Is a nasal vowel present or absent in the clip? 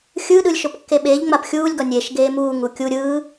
absent